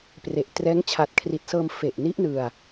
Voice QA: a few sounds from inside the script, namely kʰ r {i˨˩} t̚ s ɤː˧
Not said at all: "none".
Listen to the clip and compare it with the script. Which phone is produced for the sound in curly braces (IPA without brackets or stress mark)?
i˨˩